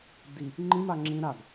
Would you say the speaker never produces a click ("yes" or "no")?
no